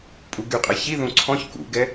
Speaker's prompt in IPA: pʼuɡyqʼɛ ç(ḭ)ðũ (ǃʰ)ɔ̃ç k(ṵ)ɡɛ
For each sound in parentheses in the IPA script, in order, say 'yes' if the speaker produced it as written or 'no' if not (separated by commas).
no, no, yes